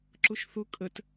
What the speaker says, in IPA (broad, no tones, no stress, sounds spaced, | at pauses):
ǁ ʊ ʃ θ ʊ kʼ ə t